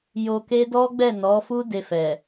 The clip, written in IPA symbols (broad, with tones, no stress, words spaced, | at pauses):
jo˧ke˦ dɔ˦ɡ͡bɛ˦˨nɔ˨˦fu˦ de˧fɛ˨